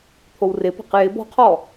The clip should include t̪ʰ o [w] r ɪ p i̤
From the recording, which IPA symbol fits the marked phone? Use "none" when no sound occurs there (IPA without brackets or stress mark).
w